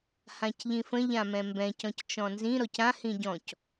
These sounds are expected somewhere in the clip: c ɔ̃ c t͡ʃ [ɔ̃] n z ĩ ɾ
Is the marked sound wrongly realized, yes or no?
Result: no